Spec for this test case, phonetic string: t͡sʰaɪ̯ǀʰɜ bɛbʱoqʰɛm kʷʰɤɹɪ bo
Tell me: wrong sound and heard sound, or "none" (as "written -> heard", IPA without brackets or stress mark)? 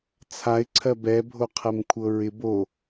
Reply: none